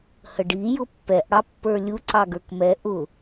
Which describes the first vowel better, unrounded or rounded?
unrounded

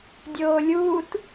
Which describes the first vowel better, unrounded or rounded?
rounded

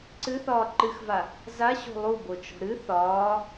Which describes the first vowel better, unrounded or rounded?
unrounded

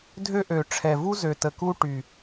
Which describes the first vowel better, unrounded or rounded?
rounded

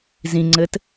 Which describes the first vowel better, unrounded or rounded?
unrounded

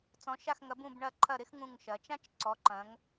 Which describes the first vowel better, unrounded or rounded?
rounded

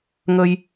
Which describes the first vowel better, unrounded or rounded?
unrounded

